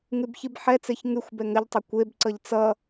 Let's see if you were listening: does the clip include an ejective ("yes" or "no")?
no